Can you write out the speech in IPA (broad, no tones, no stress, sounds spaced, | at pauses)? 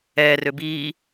ɛː r ø b iː